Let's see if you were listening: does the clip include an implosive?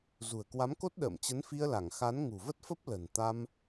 yes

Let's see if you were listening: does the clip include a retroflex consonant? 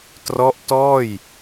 no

